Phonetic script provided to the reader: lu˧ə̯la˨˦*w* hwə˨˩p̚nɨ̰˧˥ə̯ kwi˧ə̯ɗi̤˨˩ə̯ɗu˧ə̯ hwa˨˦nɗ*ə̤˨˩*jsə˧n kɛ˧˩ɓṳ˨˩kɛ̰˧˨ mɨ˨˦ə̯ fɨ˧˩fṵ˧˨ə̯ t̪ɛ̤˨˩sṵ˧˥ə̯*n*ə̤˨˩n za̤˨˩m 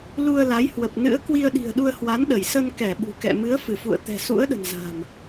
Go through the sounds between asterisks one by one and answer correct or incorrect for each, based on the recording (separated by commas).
incorrect, incorrect, incorrect